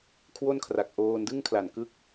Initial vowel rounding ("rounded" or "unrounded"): rounded